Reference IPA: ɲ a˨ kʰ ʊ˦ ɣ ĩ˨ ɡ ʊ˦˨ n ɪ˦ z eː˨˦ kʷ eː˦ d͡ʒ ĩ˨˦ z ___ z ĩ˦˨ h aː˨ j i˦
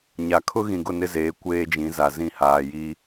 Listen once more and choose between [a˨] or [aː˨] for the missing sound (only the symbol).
a˨